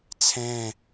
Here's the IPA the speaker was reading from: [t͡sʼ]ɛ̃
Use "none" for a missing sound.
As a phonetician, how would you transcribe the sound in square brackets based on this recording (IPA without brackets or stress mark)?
t͡sʰ